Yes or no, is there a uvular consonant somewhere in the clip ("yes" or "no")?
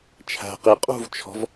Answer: yes